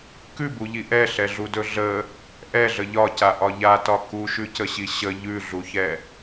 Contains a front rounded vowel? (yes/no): no